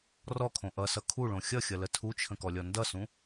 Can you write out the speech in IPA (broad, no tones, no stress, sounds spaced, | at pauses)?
r ɔ kʰ õ ʔ ʌ s ʌ kʰ u ɭ õ xʲ ʌ xʲ ʌ l ə tʰ u t͡ʃʰ ə̃ k ɔ lʲ ɔ n d ʌ s ũ